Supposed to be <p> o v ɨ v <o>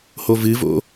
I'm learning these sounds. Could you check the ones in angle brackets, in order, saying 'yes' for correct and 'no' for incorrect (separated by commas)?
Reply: no, no